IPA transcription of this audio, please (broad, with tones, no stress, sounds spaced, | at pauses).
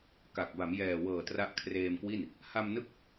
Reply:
k a˨˩ k̚ b a˩˦ m j ɛː˨˩ w ɤː˨˩ t r a˦˥ ʔ kʰ r eː˧ m k w i˥˩ n | h a˧ m n ɯ˦˥ k̚